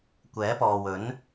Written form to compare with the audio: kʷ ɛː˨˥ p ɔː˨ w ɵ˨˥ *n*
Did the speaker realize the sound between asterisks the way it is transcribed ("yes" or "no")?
yes